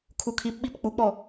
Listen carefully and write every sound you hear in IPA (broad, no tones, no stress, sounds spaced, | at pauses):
kʰ u kʰ i p ɓ i p k͡p u k͡p ɔ